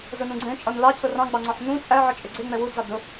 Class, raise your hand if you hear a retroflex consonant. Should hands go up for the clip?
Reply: no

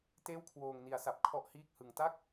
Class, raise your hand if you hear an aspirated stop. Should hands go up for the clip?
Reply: yes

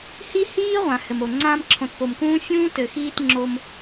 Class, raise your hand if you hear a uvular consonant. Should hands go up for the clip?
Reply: yes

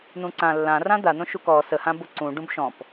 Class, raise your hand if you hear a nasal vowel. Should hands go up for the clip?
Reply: yes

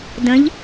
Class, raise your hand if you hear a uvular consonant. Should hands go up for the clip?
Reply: no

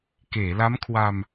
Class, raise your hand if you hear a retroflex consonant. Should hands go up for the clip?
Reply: no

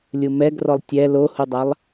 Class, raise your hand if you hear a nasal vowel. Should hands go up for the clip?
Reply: no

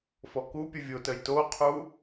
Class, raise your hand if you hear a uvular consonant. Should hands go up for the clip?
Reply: yes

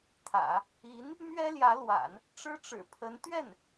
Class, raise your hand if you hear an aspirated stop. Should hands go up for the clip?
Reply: yes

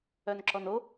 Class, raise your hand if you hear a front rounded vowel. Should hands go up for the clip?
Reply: yes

